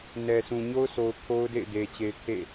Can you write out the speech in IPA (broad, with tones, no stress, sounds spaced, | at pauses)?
n ɛ˨ sʰ ũ˨ ɲ o˦ ʊ̯ sʰ o˨ ʊ̯ kʰ o˦ ʊ̯ d ḛ˦˨ ɪ̯ d e˨ t͡ɕ e˨ ɪ̯ kʰ ḛ˦˨